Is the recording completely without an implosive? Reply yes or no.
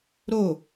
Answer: yes